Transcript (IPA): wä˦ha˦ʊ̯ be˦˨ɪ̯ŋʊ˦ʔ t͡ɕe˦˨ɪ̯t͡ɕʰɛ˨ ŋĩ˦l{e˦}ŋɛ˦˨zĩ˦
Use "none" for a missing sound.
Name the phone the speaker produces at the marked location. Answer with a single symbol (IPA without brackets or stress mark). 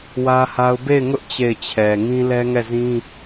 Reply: ɛ˦